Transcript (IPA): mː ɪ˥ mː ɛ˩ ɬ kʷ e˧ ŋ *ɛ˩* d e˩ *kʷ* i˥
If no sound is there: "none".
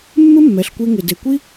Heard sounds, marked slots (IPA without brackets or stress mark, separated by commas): ɪ˩, kʷ